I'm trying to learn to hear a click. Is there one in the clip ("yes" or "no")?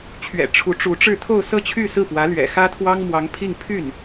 no